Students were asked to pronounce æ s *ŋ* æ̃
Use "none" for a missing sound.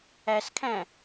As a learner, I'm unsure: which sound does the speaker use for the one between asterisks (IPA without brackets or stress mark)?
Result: kʰ